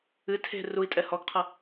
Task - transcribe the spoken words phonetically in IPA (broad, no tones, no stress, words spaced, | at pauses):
ɨ tʰe̤ rui̯tʼɛ hɔɡqʰɐ